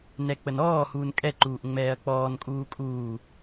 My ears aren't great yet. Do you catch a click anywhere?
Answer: yes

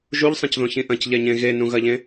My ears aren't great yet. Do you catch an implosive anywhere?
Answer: no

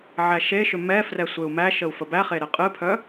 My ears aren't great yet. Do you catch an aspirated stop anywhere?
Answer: yes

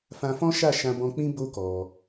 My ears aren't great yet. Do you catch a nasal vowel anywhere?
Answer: yes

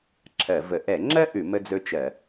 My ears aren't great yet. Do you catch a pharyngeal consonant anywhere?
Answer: no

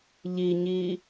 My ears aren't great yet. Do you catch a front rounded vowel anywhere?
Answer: no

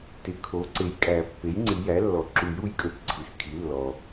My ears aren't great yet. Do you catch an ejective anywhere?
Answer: yes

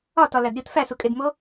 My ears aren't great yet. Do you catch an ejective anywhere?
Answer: yes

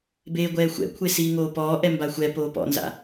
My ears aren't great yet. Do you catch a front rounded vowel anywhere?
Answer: no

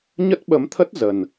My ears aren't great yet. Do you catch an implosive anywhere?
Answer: yes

